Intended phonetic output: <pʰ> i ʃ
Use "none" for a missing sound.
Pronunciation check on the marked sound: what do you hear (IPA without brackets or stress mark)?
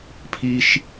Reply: pʰ